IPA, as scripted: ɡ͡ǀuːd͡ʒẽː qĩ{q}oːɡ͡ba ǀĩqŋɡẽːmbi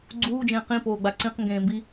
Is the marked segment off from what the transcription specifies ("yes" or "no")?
yes